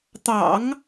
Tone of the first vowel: low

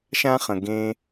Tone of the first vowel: high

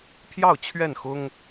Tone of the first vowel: falling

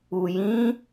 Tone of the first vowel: low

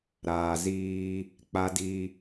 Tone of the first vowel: low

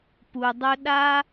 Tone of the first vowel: low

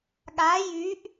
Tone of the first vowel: rising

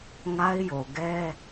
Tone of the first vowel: high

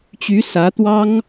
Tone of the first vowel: rising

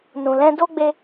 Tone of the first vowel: low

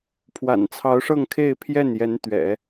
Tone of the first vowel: low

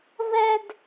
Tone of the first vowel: high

